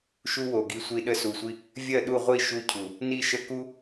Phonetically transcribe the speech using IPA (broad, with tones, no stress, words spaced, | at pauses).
ʃu˦wo˨ɡi˧ sʷi˧ɗə˧ su˨sʷi˧ | vʲɜ˦˨ɗu˦˨ʁʷi˦˨ ʃu˧cʰu˨ | ni˧ʃə˧ku˦